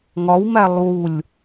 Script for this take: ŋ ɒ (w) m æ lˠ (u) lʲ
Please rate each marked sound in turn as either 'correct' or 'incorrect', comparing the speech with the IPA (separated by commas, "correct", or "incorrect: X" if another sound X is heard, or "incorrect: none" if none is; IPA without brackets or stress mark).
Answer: correct, correct